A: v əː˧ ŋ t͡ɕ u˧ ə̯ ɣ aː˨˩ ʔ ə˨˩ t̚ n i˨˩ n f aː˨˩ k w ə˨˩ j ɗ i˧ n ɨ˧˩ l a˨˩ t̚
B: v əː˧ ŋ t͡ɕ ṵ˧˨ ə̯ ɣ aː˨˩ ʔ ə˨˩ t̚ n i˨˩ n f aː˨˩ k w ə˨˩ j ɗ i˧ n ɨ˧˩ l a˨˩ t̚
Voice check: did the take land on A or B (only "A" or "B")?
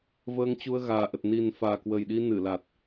A